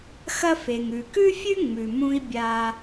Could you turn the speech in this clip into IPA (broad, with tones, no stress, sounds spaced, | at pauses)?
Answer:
x ɐ˧ f e˩ ŋ ʉ˩ k ʉ˥ fʲ ʉ˥ ŋ͡m ʉ˩ m ũ˧ i̯ bʲ a˧